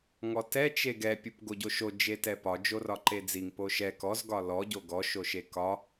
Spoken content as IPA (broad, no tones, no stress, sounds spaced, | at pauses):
ŋ ɔ t ɛ t͡ʃ e ɡ ɛ pʲ u p ɡ o ɟ o ʃ o d͡ʒ e t ɛ p ɒ d͡ʒ o r ɒ ǃ e d͡z i ŋ p o ʃ ɛ k ɔ z ɡ ɒ l ɔ ɟ o ɡ ɔ ʃ o ʃ e k ɒ